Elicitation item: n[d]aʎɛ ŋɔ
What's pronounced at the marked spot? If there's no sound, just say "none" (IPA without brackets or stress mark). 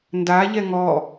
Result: d